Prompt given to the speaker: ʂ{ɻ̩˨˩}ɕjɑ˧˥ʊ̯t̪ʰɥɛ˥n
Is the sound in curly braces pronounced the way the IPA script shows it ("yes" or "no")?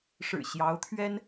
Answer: yes